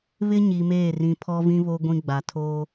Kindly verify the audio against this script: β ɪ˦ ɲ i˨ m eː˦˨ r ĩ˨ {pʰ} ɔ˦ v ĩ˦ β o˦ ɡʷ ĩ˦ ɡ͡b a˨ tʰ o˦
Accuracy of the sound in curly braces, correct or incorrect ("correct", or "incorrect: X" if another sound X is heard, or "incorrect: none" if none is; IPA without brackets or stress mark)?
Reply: correct